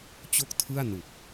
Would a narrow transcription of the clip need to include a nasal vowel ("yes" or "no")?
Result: no